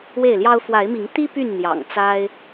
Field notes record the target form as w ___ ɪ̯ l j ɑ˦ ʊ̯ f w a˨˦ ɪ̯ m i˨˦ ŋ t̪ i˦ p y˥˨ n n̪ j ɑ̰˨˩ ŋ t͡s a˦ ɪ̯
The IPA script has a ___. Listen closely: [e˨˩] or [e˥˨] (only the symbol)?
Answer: e˥˨